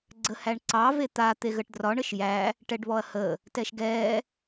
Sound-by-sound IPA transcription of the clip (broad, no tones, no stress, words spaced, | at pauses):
ɡ͡ǀəhæɳǀɑ vet̪a t̪eɣəʈdrɒɳ əʃjæ | ʈɛɖβɔɐ̯hə | tɛʃɡɛ